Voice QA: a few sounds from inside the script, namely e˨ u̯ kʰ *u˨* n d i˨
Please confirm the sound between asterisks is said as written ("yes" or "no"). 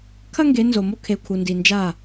yes